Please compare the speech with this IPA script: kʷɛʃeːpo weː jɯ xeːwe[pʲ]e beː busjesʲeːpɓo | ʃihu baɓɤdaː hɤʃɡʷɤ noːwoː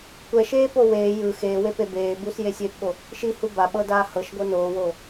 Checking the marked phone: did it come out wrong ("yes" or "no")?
yes